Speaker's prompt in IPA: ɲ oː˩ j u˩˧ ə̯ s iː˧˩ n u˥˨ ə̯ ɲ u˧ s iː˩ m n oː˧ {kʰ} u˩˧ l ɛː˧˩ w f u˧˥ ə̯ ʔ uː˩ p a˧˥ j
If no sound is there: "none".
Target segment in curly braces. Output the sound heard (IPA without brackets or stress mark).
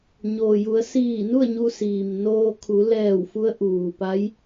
kʰ